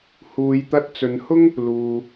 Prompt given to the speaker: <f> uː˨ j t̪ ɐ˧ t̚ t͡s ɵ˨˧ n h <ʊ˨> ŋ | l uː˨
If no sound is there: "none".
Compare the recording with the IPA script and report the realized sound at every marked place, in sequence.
h, ʊ˥

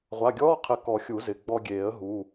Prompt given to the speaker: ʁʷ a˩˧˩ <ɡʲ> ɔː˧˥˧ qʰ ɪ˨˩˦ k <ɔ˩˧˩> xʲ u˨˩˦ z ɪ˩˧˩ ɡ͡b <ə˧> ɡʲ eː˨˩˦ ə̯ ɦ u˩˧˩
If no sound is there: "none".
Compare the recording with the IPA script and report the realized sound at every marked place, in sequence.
ɡʲ, ɔ˨˩˦, ɔ˧

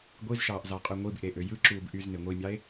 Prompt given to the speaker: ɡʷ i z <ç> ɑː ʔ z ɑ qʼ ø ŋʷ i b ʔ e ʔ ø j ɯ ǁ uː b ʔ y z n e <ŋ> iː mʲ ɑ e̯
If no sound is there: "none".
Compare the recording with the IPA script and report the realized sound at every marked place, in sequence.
ʃ, ŋʷ

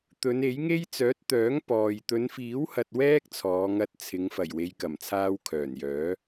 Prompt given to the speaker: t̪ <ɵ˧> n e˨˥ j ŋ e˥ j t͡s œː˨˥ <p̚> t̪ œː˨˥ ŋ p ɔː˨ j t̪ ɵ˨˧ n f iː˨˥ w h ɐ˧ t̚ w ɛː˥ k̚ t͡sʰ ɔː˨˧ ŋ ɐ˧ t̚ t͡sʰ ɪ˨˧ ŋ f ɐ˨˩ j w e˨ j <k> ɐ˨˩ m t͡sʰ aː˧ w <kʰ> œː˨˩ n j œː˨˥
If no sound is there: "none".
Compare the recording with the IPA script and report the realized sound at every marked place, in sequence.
ɵ˨˧, t̚, k, kʰ

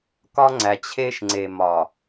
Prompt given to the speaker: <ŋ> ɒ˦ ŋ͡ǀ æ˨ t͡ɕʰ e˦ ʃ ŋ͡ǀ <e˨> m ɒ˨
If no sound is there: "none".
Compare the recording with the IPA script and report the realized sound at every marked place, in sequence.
k, e˨

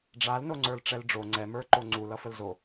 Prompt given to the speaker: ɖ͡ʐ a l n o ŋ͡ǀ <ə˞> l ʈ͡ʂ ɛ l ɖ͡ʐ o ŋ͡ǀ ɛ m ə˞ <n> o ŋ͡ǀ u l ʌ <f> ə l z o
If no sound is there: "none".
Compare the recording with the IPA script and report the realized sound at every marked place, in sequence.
ə˞, ǃ, f

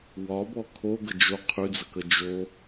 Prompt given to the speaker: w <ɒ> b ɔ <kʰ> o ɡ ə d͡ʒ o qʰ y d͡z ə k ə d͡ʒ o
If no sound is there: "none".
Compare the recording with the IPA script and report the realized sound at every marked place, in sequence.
ɒ, kʰ

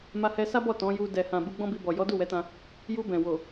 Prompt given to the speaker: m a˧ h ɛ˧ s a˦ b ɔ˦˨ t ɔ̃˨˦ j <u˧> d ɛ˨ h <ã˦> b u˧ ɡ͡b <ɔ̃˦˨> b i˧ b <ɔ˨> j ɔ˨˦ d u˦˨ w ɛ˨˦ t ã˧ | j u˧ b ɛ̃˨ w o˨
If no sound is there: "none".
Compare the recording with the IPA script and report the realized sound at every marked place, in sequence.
u˧, ã˨, ɔ̃˦, ɔ˨

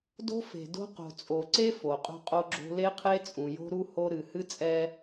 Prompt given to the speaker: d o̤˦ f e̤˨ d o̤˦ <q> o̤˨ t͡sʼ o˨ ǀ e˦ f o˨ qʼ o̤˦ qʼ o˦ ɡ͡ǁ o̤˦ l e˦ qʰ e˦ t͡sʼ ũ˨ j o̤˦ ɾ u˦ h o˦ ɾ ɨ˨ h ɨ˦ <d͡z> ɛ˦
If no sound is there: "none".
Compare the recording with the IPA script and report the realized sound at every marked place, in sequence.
q, t͡sʼ

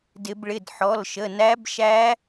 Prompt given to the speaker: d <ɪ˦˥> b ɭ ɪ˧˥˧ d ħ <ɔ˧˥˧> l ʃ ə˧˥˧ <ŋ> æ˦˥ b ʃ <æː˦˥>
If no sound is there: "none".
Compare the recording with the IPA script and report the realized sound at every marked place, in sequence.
ɪ˦˥, ɔ˧˥˧, n, æ˦˥

